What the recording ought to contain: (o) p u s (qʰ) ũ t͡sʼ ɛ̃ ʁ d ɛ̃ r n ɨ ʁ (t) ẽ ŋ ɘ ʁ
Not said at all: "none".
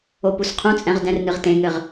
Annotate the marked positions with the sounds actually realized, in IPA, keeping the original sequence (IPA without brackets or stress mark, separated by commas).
o, qʰ, t